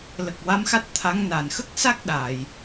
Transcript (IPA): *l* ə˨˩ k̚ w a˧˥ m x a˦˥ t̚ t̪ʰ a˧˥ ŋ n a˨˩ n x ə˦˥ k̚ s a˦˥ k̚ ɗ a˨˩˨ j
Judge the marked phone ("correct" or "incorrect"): correct